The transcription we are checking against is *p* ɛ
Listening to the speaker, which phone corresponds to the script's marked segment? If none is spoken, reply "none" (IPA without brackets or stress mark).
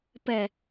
p